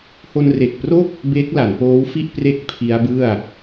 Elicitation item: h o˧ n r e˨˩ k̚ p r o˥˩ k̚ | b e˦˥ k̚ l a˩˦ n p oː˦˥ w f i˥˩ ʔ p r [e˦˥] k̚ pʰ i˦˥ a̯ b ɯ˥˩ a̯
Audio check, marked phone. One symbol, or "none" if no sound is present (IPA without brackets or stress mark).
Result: e˦˥